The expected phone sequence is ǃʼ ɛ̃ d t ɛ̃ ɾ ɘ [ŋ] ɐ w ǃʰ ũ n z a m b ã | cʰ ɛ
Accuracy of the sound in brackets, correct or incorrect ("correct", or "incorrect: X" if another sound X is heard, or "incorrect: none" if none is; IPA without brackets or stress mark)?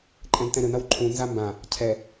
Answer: incorrect: n